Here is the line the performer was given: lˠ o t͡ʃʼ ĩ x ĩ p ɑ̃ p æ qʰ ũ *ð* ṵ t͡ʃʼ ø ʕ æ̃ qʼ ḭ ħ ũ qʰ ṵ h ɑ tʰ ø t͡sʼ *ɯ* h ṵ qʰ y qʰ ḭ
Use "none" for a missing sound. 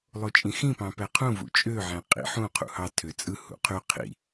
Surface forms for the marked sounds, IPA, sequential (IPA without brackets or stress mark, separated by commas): v, ɯ